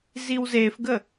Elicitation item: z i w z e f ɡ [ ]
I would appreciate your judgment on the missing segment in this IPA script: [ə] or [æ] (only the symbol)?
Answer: ə